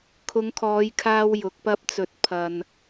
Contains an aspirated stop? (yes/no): yes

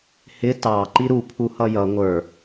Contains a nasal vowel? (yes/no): no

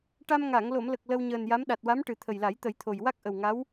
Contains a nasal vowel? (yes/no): no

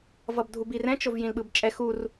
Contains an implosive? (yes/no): yes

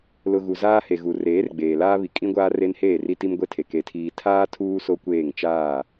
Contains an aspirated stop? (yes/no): yes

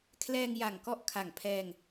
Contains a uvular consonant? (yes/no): no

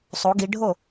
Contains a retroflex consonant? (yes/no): yes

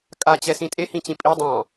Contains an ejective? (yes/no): yes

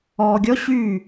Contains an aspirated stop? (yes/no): no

